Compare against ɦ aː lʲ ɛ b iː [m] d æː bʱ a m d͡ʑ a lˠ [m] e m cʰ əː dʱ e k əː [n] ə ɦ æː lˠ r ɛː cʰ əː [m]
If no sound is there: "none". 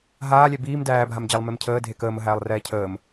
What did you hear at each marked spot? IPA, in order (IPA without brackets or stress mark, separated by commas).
m, m, m, m